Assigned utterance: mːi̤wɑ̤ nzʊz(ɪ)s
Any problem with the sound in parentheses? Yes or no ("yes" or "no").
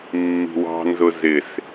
no